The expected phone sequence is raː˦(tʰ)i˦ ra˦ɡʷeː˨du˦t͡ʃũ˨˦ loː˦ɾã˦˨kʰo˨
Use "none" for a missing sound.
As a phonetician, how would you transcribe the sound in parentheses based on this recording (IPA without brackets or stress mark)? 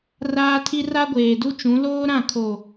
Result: tʰ